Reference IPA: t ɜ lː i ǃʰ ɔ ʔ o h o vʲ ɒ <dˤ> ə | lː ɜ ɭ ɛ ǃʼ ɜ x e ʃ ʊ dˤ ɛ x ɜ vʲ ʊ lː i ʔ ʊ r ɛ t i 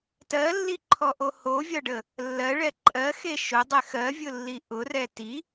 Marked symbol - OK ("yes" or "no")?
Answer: no